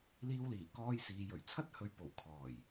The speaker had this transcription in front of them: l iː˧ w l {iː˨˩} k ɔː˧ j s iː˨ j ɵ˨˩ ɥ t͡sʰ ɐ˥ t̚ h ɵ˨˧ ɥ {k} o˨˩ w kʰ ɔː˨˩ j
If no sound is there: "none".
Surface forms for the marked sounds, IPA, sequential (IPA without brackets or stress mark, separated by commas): iː˨˩, p